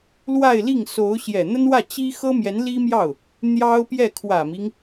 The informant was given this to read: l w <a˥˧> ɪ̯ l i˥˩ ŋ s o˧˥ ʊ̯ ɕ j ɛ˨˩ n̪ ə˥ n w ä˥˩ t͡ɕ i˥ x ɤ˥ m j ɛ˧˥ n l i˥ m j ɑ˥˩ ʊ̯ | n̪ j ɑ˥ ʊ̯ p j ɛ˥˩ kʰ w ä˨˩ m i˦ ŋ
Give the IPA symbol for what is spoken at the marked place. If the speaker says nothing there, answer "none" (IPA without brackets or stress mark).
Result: a˥˧